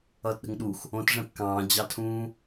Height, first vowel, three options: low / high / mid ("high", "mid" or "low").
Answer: mid